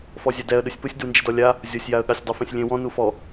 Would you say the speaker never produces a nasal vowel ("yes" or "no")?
no